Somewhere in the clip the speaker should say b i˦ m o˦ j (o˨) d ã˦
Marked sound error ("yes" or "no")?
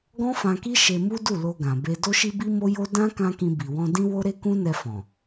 yes